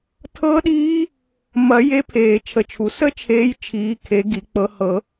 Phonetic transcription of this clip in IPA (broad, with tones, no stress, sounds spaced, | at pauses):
tʰ ɤ˦˥ ɗ iː˦˥ | m ɐ˨˩˦ j e˨˦ pʰ eː˨˩˦ t͡ʃʰ ə˨˩˦ t͡ʃʰ u˨˩˦ s ə˦˥ t͡ʃʰ eː˨˦ j t͡ʃʰ iː˨˦ kʰ e˨˦ ɡ i˨˩˦ k͡p ɤ˨˦ h ɤ˨˩˦